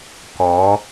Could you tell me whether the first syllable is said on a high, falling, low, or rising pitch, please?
rising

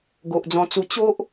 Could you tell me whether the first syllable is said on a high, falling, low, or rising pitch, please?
low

